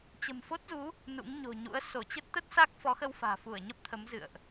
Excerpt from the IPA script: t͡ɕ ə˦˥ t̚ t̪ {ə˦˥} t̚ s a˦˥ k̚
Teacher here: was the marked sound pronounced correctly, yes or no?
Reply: yes